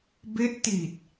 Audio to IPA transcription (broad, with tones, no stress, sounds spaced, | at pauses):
b e˦˥ ʔ t i˨˩ t̚